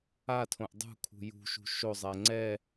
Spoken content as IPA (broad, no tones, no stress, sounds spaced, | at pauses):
a tʰ õ ʔ dˤ ṳ kʰ ṳ j ṳ ʃ ṳ ʃ o zˤ ɛ ŋ͡ǀ ɛ